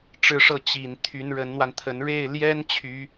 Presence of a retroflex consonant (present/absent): present